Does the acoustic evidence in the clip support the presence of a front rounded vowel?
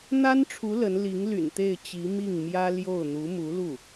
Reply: yes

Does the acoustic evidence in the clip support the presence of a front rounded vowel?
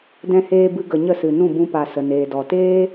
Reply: no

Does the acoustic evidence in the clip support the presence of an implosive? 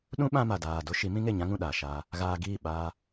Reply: yes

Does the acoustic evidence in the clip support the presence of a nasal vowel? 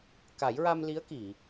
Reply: no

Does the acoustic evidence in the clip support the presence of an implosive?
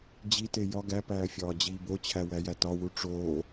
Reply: no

